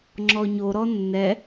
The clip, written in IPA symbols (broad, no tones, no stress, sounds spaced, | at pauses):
ŋ͡ǁ ɔ ɲ o ɾ ɔ nː ɛ